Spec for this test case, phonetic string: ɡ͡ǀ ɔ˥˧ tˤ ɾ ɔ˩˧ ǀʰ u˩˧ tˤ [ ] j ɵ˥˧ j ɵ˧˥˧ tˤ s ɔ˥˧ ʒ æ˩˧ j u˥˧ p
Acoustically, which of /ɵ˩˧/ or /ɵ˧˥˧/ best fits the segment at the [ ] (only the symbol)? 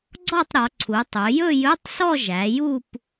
ɵ˩˧